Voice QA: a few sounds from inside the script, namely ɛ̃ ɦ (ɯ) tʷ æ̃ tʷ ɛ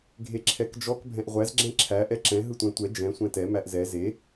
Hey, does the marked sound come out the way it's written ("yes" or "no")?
yes